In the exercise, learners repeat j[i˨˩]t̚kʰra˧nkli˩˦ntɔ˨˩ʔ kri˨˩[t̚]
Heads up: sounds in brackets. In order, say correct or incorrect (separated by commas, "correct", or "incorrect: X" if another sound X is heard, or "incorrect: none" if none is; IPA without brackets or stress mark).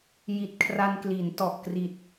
correct, correct